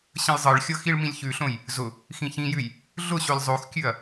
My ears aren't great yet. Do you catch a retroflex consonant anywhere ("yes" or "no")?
yes